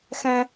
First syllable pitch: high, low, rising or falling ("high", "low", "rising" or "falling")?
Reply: high